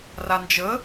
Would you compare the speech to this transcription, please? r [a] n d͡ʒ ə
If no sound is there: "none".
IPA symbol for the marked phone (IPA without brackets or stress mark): a